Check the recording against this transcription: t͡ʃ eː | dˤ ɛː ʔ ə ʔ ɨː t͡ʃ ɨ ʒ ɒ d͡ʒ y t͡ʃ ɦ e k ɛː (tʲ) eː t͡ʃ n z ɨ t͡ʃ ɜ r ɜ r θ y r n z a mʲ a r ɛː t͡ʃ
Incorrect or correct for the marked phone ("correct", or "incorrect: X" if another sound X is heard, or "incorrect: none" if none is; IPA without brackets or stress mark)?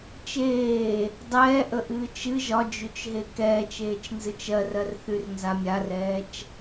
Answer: incorrect: t͡ʃ